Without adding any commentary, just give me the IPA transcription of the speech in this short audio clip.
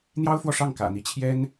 n̪jɑ˥ʊ̯fwɔ˨ʂɑ˥˩ŋ kä̰˨˩n̪i˧˥t͡ɕʰjɛ˥n

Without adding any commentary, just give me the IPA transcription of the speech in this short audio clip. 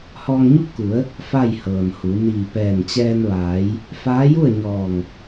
hɔː˧ŋɲu˥˨p̚ku˩˧ə̯ | fa˥˨jhɤː˩nhu˩˧ niː˧˩pɛː˧˩nt͡ɕɛː˧n ʋaː˩˧j | faː˧˥ju˥˨ə̯ ɲɔː˧˩ŋ

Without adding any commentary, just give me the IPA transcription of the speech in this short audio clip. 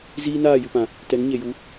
ziː˦naː˦˨jɨ˨pã˨ | tɛ˨˦ŋɲe˨ju˨˦

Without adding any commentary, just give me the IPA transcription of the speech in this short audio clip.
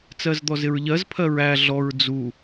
t͡sɜzd̪ɔzɪɹʎɜz pʰɜɹæ ɮɔɹ d͡zu

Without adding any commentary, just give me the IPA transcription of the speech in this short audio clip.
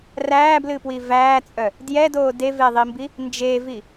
ræːblɨpwi væːt͡sʼœ | djɛdoː deveðˤimbi | nd͡ʒevi

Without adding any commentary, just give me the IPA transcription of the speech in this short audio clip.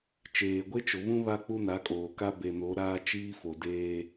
t͡ʃeː˨ɡʷe˦t͡ʃʊ˨βũ˦ βa˦ k͡pu˦na˨˦kʼoː˨ka˦ be˨no˨˦ɾaː˦ t͡ʃiː˦fo˨ deː˦

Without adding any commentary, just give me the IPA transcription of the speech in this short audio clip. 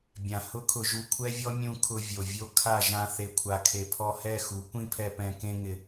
bʲã˨ hʊ˦kʰʊ˧ ʒu˧kʷʰɛ˦vʲɔ˦ mʲũ˧kʰʊ˧ vʲo˨vʲo˦ kʰa˦˨ ʒã˧ θe˨kʷʰa˨kʰe˨ pʰɔ˧hɛ˦˨xu˨˦ kʷĩ˦pʰɛ˧pɛ̃˧ kẽ˧ŋɪ˨

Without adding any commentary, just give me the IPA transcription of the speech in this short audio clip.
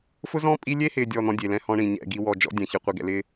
fʊ˦zɔ̃˦ pʼi˦ lʲe˦hɪː˨ dʲɔ˦˨n̪ɔ̃˦dʲe˨ lɛ̃˦hɔ̃˦ɳĩ˨ ɲɛ̰˦˨ɡi˦wɔ˦˨ d͡ʒɔ̰˦dʲɛ̃˨çɪ˨ qʷi˨ɡɛ̰˨lɪː˦

